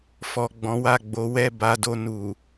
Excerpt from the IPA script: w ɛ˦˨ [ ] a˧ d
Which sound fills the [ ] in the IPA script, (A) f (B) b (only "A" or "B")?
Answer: B